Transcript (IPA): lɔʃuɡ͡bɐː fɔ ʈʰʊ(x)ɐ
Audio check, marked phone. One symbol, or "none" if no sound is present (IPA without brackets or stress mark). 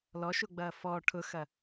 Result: x